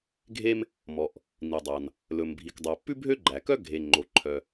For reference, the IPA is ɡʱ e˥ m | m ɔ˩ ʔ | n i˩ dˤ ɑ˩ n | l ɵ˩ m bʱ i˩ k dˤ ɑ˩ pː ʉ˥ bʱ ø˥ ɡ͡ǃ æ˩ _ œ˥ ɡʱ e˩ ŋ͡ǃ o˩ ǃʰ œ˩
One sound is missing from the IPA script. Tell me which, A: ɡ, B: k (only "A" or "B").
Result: B